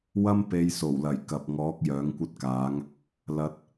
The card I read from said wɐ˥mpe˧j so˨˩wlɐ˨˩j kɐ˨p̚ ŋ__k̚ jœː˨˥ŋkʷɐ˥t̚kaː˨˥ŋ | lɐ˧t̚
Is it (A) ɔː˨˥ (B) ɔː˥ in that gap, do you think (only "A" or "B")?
A